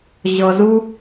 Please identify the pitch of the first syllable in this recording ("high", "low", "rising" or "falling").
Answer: low